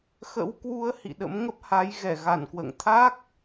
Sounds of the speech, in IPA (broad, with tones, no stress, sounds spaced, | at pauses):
x ə̰˧˥ w k w u˨˦ ə̯ h ḭ˧˨ ɗ ə̰˧˥ m ŋ ə˦˥ p̚ h a˨˦ j ɣ ɛ˧˩ ɣ a˧˩ n k w ə̰ː˧˨ ŋ t̪ʰ a˦˥ k̚